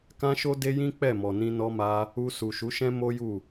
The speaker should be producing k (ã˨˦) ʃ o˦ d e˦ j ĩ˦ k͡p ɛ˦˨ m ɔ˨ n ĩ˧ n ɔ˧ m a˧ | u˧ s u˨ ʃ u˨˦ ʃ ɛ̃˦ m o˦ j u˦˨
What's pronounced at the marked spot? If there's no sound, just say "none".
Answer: ã˦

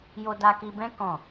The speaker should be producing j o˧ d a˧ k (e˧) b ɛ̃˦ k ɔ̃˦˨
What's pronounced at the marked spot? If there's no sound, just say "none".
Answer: i˧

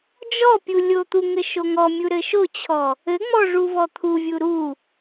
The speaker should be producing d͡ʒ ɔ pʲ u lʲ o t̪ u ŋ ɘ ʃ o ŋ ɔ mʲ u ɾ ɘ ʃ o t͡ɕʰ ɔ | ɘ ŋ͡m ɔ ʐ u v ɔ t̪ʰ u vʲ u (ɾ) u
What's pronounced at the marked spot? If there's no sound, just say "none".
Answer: ɾ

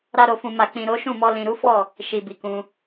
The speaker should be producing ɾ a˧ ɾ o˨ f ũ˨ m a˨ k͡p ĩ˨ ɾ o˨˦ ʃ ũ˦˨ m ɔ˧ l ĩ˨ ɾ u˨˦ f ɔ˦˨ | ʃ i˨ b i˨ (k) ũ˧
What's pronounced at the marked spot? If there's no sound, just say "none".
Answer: k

